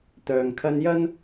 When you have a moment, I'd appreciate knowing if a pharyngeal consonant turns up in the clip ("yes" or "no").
no